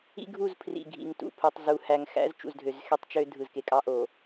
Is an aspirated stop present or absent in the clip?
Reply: present